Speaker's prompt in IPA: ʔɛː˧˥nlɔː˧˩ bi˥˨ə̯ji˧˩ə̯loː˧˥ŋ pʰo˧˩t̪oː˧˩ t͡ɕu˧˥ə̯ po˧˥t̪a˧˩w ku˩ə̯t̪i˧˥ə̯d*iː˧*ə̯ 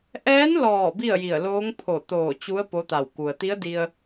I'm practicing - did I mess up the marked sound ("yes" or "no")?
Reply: yes